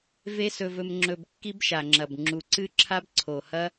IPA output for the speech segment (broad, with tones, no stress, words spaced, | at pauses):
ve˦sɵ˧vɵ˧mŋ͡ǁɵ˧b kːi˦bʃa˨ŋ͡ǁɐ˨b ŋ͡ǁu˨ǀɨ˦ǁʰa˦b ǀʰo˨hɐ˦